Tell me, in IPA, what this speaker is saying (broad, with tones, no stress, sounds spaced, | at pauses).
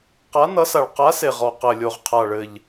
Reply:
q a˨˥ n ʌ˨˥ s a˨˩ ɭ q a˨˥ s e˨˩ ʁ ɔ˨˩ q ɘ˨˩ lʲ o˨˩ ʁ qʰ a˨˩ ɭ ɘ˨˩ ʎ